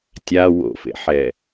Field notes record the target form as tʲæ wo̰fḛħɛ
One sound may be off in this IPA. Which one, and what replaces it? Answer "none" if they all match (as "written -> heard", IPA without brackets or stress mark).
æ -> a